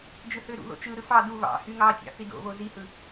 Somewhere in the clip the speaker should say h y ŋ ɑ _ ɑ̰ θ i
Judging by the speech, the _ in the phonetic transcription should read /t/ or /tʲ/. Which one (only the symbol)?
tʲ